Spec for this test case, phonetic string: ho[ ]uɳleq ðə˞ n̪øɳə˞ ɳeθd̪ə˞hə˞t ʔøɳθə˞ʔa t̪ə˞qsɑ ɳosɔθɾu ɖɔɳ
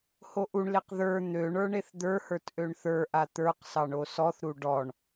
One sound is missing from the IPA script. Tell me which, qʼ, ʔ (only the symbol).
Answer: ʔ